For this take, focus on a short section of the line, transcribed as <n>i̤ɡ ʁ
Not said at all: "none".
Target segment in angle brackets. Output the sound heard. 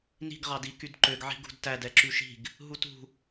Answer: n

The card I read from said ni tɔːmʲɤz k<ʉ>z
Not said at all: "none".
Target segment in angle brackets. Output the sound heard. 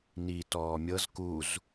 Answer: u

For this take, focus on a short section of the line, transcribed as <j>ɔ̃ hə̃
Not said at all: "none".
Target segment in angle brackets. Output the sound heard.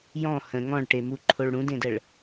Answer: j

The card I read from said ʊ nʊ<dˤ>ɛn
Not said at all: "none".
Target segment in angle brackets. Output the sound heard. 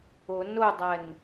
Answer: dˤ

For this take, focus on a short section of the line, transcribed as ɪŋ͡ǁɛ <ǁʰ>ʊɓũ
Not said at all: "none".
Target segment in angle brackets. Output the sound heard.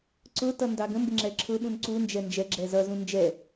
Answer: ǁʰ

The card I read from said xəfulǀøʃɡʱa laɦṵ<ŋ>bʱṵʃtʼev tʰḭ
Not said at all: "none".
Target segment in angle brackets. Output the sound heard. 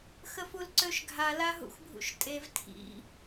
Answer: x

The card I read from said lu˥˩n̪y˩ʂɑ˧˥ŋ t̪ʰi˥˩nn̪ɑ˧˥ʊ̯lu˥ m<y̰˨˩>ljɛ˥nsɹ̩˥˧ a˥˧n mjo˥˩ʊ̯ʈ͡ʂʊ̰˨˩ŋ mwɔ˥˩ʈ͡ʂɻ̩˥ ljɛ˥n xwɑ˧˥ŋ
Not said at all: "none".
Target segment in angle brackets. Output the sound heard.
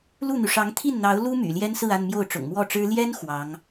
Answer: y̰˨˩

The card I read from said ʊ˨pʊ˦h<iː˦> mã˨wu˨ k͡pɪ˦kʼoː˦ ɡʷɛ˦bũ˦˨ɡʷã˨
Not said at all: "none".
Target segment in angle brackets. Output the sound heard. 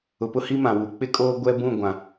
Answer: i˦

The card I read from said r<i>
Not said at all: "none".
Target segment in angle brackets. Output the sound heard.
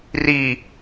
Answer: i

